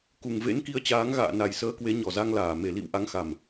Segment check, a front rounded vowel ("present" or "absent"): absent